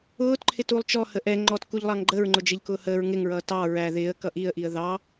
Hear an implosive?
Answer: no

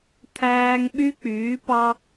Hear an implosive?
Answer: yes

